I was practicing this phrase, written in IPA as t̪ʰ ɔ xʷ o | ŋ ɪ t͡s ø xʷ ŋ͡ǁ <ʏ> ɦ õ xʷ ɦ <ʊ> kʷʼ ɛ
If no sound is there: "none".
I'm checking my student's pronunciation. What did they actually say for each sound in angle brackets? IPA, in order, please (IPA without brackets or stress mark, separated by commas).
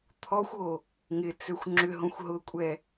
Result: ʏ, ʊ